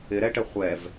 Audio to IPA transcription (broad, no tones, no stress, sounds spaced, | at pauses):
ɪ ɾ ɛ ʈ ə χʷ ɛ v